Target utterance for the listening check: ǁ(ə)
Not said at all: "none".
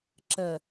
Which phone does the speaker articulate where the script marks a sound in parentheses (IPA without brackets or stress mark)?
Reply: ə